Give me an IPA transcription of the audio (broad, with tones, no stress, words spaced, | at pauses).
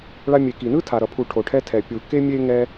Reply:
ɭa˧mʲe˨ki˨nɯ˦ tʰa˨ɾʌ˨pʰu˨ ʈʰo˨ʈʰɛ˧tʰɛ˨ pʲu˨ ke˦mʲe˦ŋɛ˦